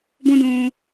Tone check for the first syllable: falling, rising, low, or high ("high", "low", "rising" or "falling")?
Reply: high